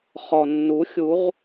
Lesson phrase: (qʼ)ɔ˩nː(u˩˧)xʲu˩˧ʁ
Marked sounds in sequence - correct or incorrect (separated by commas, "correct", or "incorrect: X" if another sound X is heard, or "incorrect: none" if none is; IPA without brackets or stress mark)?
incorrect: χ, correct